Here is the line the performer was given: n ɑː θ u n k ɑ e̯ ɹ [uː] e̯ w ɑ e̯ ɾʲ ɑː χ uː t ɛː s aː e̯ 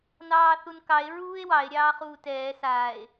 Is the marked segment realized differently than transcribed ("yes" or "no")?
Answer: no